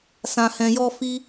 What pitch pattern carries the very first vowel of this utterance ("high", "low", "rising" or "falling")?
low